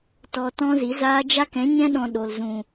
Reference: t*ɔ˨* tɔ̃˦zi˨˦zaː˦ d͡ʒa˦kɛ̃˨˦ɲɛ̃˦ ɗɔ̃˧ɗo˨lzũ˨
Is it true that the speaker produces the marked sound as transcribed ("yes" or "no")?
yes